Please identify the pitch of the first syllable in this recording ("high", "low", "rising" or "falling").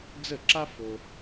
falling